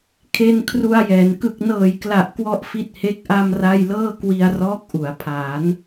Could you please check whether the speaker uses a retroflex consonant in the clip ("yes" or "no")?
no